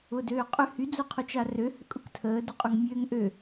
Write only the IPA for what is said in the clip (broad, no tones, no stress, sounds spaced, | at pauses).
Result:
ʊ d øː qʼ ʏ h y d͡z ʊ qʰ ʊ t͡ʃ a r ø h ʏ kʼ ʊ k tʰ əː d ʊ qʼ ʊ ŋ mʲ øː ŋ ʔ ø